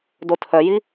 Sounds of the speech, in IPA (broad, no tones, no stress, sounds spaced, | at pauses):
d o tʰ œ j i